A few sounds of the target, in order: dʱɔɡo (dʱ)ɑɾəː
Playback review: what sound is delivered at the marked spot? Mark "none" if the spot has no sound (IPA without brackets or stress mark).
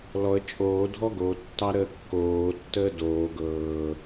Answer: tː